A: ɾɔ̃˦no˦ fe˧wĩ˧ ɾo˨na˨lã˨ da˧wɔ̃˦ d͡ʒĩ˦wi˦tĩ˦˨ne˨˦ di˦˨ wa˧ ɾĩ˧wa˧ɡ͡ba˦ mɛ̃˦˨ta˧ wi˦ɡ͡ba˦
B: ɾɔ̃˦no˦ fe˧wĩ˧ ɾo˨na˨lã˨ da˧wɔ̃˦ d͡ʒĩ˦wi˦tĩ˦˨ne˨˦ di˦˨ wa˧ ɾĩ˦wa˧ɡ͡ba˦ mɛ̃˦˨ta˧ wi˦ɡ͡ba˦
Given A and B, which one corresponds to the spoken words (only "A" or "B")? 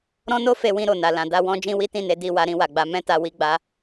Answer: B